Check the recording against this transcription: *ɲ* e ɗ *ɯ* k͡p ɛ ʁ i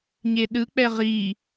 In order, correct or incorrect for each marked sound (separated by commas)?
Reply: correct, correct